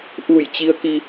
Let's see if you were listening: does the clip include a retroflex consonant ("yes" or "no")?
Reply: no